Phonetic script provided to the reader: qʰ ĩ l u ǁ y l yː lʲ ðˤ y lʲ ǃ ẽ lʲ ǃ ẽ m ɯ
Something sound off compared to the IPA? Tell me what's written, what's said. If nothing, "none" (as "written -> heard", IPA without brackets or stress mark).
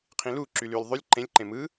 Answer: none